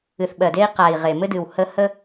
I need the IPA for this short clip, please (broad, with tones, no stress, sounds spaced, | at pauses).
ɨ˨ θ ɓ ɜ˨ d e˦ i̯ q a˨ i̯ ʁ e˨ m ɘ˦ d ɨ˨ w h ə˦ h ə˦